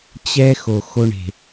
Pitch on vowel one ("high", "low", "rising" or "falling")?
high